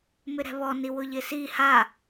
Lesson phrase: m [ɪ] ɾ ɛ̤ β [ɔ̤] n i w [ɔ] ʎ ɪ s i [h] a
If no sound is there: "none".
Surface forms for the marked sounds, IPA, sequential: ɪ, ɔ, ʊ, h

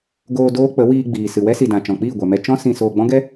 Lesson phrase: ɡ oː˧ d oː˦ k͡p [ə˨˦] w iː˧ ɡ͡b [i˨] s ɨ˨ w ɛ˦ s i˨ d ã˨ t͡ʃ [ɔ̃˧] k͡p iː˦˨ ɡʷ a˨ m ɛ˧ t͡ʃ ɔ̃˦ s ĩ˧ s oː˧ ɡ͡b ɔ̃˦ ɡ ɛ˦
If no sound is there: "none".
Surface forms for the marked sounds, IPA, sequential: ə˨˦, iː˨, ɔ̃˨

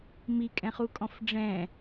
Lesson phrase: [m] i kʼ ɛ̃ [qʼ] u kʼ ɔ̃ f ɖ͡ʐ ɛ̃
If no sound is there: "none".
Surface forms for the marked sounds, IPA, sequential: m, χ

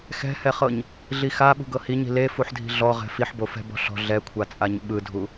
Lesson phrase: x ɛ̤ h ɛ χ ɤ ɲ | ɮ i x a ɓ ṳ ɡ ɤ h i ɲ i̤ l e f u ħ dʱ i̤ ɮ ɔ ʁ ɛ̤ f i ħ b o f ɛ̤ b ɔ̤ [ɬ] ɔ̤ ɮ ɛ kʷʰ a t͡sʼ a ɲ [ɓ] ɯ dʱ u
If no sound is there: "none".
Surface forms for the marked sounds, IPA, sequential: ɬ, ɓ

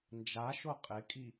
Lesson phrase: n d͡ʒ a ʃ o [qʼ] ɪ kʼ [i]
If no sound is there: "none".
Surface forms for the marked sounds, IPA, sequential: qʼ, i

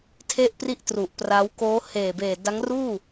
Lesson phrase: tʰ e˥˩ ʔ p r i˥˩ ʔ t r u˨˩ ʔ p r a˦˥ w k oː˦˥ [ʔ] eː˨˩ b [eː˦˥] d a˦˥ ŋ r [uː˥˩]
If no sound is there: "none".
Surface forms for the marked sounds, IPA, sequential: h, eː˨˩, uː˥˩

